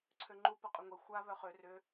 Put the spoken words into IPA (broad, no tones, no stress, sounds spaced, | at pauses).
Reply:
ǀʰ ø ŋ͡ǃ u p ɐ qʼ ʏ ŋʷ e xʷ a β œ χ ø r ʏ